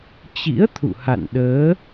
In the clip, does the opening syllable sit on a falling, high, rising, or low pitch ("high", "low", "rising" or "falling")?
rising